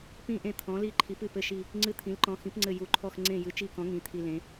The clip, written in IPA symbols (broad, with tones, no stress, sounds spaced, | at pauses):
p ĩ˦˨ ʔ ẽ˦˨ t̪ʰ ɔ̃˨˥ l i˦˨ ǃʰ i˨˥ p ɨ˦˨ p ɘ˦˨ ʃ i˦˨ | ŋ͡ǀ ɨ˦˨ t̪ʰ ĩ˨˥ l ǃ ɔ̃˨˥ x ĩ˨˥ p ŋ͡ǀ ɘ˦˨ j u˨˥ ǃʰ ɔ˦˨ x ŋ͡ǀ ẽ˦˨ j ɨ˨˥ t͡ʃ i˦˨ k ɔ̃˨˥ ŋ ĩ˨˥ t̪ʰ i˦˨ l ẽ˨˥